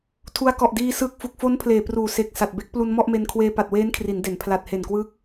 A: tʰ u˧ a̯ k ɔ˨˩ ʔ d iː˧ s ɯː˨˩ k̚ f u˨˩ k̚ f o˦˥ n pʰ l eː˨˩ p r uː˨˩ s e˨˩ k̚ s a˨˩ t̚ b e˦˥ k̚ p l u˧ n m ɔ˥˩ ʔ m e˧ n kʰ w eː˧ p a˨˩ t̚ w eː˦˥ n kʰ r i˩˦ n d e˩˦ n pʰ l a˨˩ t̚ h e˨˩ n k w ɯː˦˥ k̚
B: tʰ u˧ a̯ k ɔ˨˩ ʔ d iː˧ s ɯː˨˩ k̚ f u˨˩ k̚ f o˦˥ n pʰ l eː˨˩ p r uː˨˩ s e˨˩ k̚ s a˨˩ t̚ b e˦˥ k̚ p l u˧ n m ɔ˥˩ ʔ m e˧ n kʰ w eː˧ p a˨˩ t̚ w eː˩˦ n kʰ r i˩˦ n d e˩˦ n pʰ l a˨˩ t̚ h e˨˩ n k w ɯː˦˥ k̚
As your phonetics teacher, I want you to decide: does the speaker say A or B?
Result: A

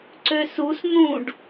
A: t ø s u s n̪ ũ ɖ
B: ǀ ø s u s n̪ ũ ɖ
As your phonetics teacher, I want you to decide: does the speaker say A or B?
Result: B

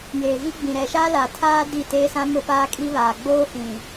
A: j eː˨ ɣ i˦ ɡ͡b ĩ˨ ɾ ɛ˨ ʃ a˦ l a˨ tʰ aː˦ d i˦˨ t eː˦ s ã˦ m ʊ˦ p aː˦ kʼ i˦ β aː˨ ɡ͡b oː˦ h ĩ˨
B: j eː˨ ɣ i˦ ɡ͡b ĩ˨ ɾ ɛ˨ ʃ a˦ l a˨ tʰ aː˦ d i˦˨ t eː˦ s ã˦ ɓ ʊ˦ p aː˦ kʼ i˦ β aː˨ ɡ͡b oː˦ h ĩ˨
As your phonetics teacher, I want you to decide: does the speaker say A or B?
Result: A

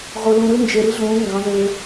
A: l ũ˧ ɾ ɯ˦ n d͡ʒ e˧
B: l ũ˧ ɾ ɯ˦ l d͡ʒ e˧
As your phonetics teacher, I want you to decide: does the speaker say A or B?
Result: A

